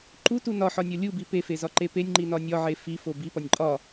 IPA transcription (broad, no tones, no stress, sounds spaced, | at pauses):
ǃ u t u n ɒ ħ ɒ nʲ ɒ lʲ u b i p e f e z ɒ ǃ e p e nʲ ŋ͡ǃ i n ɒ nʲ ɒ ʕ e f i f o b i p ɒ nʲ ǃʼ ɒ